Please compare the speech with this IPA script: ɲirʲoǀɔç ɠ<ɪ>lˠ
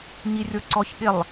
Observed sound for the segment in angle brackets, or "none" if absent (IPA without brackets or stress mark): ɪ